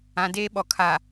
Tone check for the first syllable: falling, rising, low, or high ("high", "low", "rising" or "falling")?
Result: low